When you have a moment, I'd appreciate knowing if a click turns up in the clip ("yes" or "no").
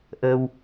no